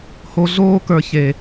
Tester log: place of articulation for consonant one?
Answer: glottal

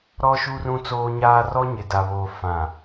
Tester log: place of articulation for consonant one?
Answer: alveolar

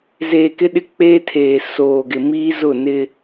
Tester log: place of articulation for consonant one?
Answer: alveolar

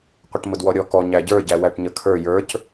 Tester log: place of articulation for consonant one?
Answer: uvular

